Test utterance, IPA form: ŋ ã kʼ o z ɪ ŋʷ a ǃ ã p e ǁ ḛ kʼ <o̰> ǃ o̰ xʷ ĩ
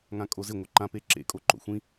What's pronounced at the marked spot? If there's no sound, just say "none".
o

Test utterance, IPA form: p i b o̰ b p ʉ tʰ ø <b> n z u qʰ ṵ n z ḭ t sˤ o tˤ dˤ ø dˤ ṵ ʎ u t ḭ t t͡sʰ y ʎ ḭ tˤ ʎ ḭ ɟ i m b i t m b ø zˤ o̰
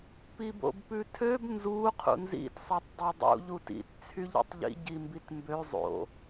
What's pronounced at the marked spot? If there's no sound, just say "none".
b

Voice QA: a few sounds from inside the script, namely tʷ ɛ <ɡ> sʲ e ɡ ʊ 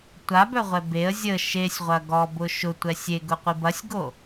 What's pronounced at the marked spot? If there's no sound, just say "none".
none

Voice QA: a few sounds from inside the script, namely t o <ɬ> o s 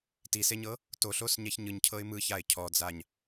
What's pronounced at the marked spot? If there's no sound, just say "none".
ɬ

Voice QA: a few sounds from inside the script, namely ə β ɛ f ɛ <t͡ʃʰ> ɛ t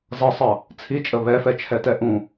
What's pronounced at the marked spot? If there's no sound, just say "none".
t͡ʃʰ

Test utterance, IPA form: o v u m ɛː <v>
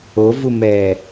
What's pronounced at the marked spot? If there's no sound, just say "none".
none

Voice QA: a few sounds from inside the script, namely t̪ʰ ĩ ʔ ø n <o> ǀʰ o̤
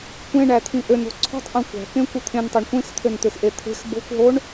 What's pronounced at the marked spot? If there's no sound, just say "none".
o̤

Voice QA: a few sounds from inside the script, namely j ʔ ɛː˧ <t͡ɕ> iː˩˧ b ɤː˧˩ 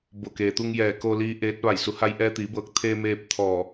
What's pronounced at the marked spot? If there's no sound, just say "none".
t̪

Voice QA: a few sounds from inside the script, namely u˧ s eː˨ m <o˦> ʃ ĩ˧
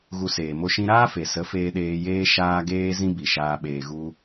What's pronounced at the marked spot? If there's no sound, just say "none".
o˦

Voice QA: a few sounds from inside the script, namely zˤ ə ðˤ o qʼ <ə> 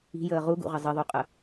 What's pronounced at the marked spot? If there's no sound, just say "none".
ə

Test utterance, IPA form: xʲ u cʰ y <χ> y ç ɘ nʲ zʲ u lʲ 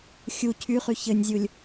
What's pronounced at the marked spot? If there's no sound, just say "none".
χ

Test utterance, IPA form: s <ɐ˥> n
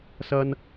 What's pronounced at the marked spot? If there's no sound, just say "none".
ɐ˧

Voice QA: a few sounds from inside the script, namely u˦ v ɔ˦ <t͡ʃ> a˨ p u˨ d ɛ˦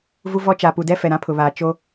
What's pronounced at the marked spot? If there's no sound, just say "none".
t͡ʃ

